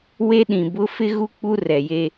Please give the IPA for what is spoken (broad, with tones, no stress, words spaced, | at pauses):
we˦ɗĩ˨bʊ˦ fɪ˦ɣu˦ k͡pu˦rɛ˨je˦